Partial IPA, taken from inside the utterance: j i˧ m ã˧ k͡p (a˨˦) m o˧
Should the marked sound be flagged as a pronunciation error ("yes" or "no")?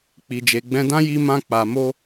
yes